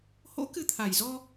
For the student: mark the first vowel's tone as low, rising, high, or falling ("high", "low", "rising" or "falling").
rising